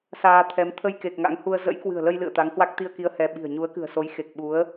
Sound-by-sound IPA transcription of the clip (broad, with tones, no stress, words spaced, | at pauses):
saː˧t̪ʰɛ˨˦m t̪ʰə˧jke˨˩k̚ ŋa̰˧˥ŋhu˧ə̯ zə̰˧˥jkwɨ̤˨˩ə̯lə˧j lɨ̰˧˨ə̯ t̪a˨˦ŋhwa˦˥k̚ t̪i˧ə̯ki˨˦ə̯ hɛ˧ ɓi̤˨˩ə̯ ɲu˨˦ə̯kɨ̤˨˩ə̯so˨˦j xe˨˩k̚ɓu˨˦ə̯